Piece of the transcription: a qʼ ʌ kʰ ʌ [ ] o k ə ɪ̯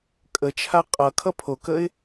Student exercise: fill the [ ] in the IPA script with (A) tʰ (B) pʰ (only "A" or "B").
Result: B